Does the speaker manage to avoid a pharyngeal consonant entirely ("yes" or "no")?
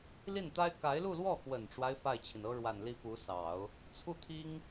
yes